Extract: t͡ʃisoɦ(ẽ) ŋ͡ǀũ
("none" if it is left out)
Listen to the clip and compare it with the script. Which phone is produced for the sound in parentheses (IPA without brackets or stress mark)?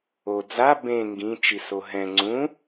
ɛ̃